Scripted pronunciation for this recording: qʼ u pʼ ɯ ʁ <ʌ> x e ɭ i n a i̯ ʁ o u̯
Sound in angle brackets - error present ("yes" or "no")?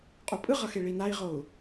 no